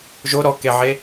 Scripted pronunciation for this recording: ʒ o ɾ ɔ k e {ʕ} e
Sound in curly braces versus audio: correct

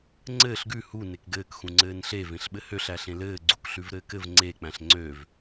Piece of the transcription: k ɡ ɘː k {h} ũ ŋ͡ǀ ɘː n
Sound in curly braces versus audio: incorrect: x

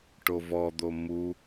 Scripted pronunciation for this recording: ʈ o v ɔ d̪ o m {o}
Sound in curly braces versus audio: incorrect: u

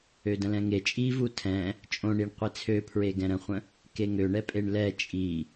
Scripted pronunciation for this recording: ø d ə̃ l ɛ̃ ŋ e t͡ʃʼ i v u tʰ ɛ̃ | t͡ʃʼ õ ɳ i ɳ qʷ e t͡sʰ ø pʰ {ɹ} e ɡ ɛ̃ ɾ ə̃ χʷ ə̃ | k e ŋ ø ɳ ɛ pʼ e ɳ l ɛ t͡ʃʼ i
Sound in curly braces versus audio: correct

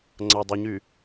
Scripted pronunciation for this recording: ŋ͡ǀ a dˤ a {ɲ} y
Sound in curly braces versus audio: correct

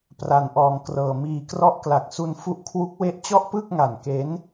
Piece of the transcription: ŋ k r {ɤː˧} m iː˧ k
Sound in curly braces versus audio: correct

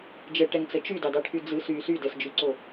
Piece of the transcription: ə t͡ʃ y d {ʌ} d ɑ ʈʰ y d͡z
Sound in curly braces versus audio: incorrect: ɑ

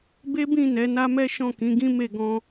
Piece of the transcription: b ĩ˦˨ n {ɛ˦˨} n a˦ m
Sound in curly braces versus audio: incorrect: ɛ˨˦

